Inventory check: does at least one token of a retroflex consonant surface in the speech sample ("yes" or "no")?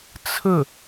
no